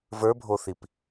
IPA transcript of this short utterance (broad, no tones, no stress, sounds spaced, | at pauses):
v ə˞ bʱ o θ i p